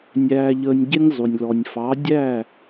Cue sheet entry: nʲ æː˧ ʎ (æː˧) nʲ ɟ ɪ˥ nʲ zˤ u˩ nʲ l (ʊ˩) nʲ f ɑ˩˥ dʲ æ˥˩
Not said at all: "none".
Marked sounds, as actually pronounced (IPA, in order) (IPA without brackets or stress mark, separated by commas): əː˧, ɔ˩